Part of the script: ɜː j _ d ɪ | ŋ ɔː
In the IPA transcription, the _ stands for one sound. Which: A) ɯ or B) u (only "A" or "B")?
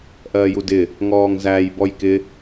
B